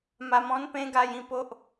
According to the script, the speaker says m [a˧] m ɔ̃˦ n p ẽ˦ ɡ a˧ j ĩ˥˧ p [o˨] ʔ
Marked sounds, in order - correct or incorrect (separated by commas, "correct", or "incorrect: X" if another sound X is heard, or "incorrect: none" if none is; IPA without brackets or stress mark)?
correct, incorrect: o˦